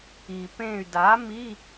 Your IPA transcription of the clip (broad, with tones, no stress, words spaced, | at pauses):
i˩ pẽ˧˩y̯da˩˥ mi˧˥˧